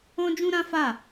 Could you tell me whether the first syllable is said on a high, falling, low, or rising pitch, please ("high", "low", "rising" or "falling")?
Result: high